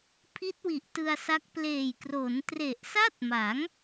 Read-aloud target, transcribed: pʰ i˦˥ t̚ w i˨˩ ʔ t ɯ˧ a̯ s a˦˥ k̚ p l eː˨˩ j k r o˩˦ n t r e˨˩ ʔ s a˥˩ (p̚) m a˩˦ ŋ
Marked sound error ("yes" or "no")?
yes